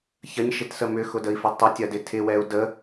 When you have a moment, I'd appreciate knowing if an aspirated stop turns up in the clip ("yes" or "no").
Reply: yes